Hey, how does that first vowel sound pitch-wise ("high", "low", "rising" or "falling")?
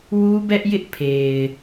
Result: high